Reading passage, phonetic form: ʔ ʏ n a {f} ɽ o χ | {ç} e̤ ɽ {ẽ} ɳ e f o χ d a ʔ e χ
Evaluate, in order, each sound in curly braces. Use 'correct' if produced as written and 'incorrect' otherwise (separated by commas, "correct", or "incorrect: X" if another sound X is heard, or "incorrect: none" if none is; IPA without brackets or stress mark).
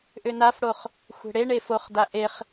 correct, incorrect: xʷ, incorrect: e